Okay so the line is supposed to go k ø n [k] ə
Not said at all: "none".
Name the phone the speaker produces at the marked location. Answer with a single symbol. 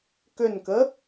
k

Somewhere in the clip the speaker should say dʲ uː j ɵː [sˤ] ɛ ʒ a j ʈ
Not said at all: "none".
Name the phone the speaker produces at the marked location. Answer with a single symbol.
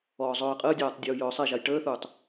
sˤ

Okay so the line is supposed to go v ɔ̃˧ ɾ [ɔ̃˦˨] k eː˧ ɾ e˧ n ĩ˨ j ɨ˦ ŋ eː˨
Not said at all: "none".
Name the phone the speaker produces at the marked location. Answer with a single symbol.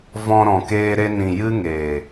ɔ̃˨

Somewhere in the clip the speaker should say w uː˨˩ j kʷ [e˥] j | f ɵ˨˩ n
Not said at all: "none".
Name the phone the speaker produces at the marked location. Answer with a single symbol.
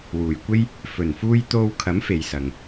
e˥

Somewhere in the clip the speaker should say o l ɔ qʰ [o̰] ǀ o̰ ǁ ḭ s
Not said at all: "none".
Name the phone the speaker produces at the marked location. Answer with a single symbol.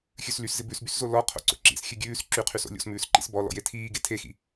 o̰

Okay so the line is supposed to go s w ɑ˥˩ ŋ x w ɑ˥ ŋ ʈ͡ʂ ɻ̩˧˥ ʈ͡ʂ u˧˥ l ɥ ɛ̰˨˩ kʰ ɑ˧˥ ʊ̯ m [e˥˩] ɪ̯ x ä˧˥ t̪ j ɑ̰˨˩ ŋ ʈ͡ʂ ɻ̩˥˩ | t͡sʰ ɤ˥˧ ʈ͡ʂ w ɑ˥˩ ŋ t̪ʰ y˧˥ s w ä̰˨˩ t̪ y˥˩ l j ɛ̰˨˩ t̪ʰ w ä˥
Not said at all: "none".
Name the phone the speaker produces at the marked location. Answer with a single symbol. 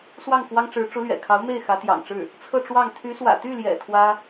e˥˩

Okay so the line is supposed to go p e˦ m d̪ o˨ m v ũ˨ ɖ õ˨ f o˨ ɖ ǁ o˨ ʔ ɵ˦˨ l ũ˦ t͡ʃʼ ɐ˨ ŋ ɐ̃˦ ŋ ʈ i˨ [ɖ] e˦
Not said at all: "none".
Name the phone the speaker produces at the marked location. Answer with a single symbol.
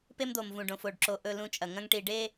ɖ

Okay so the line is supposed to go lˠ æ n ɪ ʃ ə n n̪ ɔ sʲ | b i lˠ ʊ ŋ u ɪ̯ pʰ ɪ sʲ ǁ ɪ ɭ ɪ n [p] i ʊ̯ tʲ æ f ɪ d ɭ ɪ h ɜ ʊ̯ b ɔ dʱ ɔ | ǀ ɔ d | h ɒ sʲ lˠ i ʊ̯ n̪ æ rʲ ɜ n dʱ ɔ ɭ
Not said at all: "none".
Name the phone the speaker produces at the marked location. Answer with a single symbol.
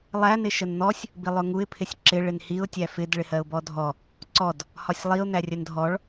h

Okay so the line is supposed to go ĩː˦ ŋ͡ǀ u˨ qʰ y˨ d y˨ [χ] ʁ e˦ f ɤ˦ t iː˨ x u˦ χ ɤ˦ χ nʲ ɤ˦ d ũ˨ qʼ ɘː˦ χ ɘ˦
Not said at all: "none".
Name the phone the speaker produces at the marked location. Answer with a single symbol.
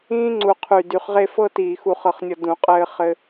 χ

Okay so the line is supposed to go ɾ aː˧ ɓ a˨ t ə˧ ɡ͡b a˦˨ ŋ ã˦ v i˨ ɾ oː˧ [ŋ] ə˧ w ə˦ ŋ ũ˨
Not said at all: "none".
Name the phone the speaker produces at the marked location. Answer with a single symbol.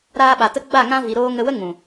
ŋ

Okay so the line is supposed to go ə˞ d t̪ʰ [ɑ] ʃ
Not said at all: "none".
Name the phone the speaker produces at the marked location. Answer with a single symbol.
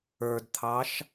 ɑ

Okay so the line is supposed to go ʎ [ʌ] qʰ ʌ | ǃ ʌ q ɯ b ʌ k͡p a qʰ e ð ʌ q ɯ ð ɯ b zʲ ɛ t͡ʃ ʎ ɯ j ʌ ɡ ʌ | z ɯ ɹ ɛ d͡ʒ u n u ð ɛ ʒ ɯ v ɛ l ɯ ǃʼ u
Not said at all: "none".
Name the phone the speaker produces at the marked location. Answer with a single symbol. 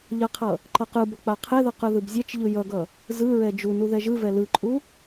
ʌ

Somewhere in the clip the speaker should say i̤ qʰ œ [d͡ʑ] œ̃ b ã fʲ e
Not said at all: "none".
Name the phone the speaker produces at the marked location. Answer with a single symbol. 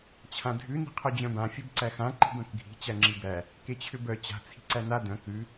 d͡ʑ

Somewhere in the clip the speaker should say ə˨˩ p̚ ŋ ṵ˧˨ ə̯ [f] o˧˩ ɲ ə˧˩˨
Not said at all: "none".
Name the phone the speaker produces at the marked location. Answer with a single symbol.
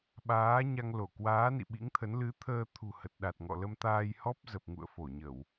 f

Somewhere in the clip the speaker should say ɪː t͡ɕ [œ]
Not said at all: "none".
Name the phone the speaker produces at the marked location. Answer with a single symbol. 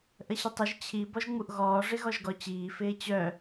œ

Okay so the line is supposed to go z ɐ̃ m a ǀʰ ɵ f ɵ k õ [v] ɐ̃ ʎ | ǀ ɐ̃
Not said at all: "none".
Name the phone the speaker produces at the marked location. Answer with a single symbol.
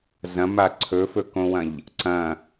w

